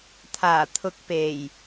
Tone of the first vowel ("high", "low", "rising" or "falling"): low